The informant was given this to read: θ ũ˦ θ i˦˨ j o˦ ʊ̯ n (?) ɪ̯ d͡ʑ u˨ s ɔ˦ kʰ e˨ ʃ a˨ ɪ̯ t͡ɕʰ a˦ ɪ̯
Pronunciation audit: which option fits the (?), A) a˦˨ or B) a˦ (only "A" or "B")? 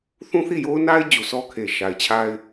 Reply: B